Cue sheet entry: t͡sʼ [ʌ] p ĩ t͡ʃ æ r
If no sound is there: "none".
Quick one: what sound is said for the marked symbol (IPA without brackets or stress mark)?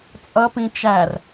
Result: ʌ